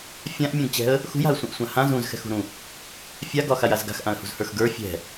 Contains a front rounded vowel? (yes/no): no